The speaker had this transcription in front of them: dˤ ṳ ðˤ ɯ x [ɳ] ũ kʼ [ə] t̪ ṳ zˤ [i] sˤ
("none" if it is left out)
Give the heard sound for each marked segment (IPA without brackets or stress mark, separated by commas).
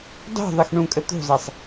ɳ, ə, i